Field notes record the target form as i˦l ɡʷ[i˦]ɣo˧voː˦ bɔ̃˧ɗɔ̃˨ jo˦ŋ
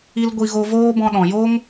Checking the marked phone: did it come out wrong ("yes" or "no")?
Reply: yes